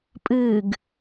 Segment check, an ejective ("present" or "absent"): present